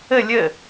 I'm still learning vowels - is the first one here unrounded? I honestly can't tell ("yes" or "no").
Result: yes